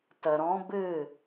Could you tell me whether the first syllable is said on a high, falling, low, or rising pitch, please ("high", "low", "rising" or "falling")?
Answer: low